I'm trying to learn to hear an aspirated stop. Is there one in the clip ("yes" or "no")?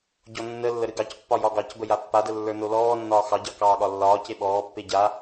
no